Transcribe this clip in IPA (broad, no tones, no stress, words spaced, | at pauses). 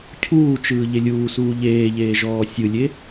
cʰuːt͡ʃɯː ʎelʲuːsuː ʎeːʎeː ʒɔːsʲɯlʲe